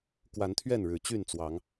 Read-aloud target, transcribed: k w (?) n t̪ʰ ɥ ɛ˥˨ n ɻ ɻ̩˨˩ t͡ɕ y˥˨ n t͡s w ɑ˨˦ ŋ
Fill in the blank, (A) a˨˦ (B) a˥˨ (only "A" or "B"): A